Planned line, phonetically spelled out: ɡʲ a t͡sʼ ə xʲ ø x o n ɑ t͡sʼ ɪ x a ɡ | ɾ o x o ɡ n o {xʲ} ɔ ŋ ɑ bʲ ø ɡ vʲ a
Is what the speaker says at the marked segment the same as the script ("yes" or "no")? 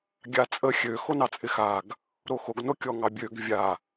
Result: no